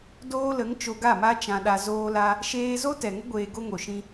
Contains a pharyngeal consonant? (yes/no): no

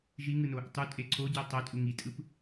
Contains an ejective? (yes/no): yes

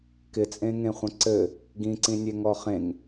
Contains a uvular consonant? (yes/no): yes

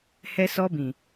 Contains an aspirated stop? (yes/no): no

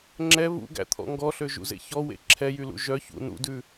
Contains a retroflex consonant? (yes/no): no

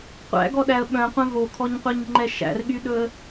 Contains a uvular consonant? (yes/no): yes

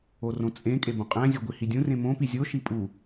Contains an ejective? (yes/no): yes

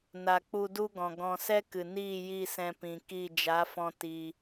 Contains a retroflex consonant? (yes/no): no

